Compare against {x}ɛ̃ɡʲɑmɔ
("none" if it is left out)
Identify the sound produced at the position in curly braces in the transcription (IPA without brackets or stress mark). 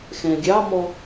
x